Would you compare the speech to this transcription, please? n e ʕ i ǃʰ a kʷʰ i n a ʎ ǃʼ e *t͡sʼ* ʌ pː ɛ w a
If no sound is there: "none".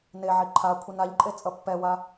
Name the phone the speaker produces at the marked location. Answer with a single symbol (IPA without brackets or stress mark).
t͡sʼ